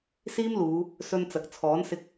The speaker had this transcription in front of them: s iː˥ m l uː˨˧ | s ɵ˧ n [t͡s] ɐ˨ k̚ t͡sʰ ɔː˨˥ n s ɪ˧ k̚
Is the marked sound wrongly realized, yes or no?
no